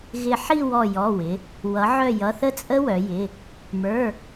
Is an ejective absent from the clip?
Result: no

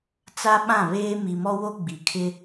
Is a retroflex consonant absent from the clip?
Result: yes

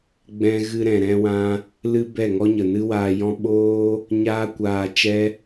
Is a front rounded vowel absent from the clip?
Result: yes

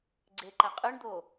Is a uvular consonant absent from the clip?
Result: no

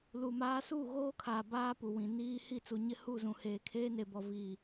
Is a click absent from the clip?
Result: yes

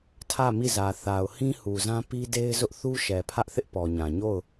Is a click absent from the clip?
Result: yes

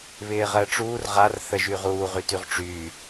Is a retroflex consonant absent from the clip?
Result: no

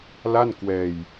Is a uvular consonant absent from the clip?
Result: yes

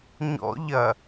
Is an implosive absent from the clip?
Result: yes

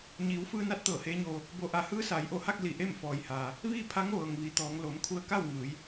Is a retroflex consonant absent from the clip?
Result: yes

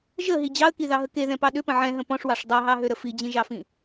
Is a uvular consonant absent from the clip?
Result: yes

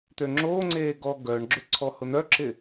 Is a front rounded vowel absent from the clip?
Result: no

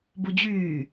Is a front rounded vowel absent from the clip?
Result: no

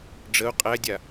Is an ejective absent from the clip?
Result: no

